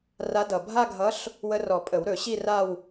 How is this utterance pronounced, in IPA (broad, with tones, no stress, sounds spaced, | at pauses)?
r a˧˥ d ʌ˨˩ bʱ a˥˧ ɡʱ ʌ˧˥ ɬ | w ə˧ r ɔ˨˩˦ pʼ ə˨˩˦ w ɾ ɵ˨˩˦ ɕ i˥˧ r a˥˧ w